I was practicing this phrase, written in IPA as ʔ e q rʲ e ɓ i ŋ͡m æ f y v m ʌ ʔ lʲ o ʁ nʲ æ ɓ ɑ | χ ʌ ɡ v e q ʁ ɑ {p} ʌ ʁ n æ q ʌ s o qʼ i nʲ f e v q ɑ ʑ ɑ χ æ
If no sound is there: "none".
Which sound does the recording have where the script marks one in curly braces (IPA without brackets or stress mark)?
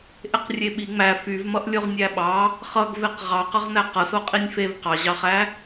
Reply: q